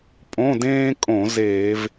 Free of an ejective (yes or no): no